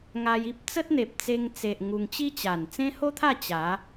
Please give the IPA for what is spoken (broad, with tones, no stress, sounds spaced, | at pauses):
ŋ a˧ j i˦ p̚ t͡s ə˦ t̚ n̪ e˨ p̚ t͡s e˧ ŋ t͡s e˨ ʔ ŋ u˧ ŋ t͡ɕ i˦ t͡ɕ a˨˩ n t͡s ẽ˦ h o˦ t̪ʰ a˥˧ t͡ɕ a˨˦